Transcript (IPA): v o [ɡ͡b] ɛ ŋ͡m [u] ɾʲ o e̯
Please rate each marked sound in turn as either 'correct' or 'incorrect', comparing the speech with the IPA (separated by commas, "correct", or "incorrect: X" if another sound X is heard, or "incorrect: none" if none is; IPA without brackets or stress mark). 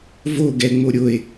incorrect: ɡ, incorrect: o